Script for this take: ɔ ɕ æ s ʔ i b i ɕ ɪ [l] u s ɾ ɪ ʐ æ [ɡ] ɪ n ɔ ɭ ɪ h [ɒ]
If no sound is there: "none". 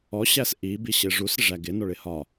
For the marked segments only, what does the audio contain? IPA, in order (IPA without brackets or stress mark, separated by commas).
ʐ, ɡ, ɒ